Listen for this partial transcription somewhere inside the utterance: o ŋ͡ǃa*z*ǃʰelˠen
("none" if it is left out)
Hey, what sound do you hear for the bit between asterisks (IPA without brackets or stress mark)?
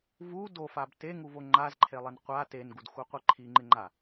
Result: z